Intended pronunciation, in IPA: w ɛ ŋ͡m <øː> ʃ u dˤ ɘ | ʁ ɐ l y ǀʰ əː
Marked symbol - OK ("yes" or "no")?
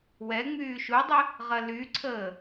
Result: no